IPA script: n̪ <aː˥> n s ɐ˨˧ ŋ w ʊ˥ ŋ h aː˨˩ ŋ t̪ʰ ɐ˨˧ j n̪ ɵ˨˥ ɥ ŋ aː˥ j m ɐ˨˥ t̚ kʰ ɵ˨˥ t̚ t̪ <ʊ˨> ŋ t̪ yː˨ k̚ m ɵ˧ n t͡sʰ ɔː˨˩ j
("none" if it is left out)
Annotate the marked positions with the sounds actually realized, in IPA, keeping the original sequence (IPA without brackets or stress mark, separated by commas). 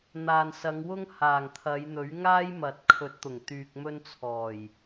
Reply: aː˨, ʊ˨˩